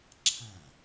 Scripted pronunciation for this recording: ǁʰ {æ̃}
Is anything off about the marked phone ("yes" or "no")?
no